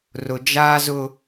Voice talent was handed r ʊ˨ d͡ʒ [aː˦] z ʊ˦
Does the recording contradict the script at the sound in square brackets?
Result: no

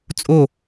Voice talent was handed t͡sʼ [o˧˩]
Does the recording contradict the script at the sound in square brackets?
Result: no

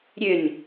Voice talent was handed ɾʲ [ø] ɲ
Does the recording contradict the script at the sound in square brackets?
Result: no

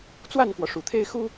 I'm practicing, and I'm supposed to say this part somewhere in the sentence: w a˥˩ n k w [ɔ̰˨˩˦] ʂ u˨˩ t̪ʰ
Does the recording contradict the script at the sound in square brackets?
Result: yes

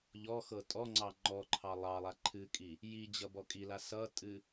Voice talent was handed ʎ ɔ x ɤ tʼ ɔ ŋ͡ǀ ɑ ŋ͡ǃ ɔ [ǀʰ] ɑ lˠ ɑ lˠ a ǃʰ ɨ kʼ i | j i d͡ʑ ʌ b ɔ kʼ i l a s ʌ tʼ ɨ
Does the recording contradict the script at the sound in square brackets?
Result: yes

